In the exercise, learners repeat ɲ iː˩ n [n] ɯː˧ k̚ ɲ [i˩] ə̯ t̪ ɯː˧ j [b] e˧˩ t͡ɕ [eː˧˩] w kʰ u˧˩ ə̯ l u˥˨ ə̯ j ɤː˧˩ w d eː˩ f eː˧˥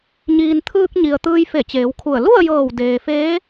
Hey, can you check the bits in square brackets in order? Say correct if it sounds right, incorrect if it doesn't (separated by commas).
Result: incorrect, correct, incorrect, incorrect